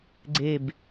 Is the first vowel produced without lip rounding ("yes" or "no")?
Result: yes